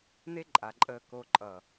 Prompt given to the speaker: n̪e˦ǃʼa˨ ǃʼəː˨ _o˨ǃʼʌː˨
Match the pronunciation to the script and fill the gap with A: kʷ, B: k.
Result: B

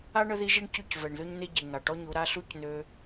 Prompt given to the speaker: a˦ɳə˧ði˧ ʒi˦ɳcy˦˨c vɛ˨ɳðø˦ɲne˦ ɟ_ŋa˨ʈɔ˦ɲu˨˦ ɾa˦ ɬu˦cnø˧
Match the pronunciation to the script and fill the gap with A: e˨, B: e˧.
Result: A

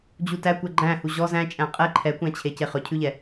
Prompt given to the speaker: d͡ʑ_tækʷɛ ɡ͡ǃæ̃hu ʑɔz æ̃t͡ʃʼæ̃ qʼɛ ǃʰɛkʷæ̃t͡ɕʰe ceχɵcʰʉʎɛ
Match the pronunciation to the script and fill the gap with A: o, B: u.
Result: B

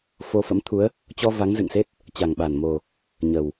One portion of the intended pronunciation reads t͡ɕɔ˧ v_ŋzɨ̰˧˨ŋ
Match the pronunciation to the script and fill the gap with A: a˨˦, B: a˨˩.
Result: A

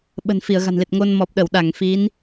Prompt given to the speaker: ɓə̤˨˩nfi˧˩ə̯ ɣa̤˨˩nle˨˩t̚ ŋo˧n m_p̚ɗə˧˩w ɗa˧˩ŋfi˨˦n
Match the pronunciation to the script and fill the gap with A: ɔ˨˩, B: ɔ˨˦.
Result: A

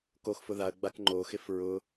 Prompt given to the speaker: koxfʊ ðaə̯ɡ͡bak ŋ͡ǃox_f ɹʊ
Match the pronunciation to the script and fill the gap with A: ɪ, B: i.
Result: A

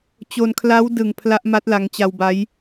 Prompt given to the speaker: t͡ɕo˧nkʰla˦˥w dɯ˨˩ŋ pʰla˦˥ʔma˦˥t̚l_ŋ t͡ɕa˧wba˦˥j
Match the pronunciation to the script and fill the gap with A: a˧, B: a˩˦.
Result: A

